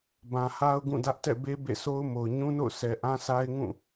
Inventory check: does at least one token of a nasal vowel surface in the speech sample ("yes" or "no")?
yes